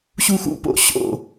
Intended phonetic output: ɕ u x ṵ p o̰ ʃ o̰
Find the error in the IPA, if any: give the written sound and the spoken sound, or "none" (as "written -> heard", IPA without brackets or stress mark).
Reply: ʃ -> ɕ